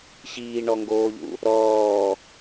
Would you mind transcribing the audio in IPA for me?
ɕiːɳɔŋɡoːʎṵ | ɾɔː

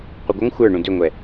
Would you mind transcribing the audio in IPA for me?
qʷʌɡʷʌŋ xʷə˞ ɳũdʏŋʷɛ

